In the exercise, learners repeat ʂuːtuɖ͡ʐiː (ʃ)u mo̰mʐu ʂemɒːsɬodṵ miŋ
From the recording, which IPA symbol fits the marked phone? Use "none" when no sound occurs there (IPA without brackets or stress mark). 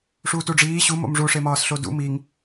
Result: ɕ